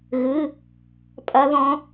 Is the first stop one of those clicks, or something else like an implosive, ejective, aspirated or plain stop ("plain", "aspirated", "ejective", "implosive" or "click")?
ejective